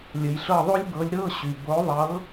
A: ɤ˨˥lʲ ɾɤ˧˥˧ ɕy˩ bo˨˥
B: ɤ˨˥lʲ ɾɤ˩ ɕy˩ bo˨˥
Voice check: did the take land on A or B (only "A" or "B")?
A